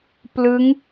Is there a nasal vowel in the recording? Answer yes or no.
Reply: no